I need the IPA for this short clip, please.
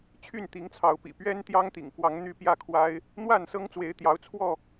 t͡ɕʰy˥˨nt̪i˨˦ŋt͡sʰɑ˨˦ʊ̯pḭ˨˩ pɥɛ˦nt̪jɑ˦ŋt̪ḭ˨˩ŋkwɑ˨˦ŋ n̪y˦pjä˥˨kʰwa˦ɪ̯ | n̪wa˥˨nsɤ˦ŋt͡swe˨˦ɪ̯ t̪jɑ˨˦ʊ̯t͡sʰwɔ˥˨

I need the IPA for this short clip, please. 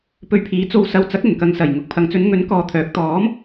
pɵ˧ɥpʰiː˨˥ t͡so˧wsɐ˧wt͡sɐ˨˥k̚ ɵ˨˩nkɐ˧ŋsɐ˨˩jŋʊ˨k̚ pʰɐ˨ŋt͡sɵ˨˧nŋɵ˨˥n kɔː˧t̪ʰœː˨˥k̚ t̪ɔː˨˥m

